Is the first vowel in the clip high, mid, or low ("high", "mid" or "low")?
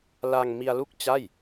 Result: low